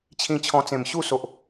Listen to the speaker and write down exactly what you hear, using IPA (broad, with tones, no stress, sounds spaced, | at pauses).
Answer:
t͡ɕʰ ĩ˧ t͡ɕʰ ɔ̃˧ t͡s ẽ˨˩ m ɕ u˥˧ s o˨ ʔ